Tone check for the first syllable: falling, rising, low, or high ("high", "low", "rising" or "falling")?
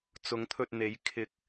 rising